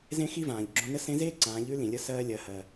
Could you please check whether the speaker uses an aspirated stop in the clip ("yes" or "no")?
no